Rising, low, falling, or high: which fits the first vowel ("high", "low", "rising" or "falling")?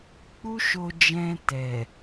high